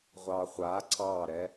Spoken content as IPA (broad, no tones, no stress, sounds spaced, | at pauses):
ʁʷ ɑ χʷ a ǀ ɑ ɾ ɛ